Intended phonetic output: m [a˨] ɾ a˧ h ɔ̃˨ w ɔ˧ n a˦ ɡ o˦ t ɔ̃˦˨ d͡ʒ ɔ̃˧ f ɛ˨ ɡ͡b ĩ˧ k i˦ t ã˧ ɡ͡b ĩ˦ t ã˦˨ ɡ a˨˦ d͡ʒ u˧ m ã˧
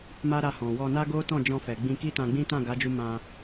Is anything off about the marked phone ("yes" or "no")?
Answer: yes